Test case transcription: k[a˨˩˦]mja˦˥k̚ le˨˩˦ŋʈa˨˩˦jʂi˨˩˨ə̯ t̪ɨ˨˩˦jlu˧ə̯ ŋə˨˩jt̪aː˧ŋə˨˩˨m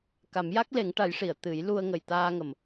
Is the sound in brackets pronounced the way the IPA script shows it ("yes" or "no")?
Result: yes